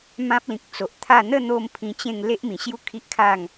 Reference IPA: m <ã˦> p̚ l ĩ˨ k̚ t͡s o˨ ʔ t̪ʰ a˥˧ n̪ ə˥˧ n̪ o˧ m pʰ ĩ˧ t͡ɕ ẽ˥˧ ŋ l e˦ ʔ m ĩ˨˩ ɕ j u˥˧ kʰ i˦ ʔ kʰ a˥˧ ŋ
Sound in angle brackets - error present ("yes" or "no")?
no